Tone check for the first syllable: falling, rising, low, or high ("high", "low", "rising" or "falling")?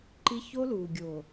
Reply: high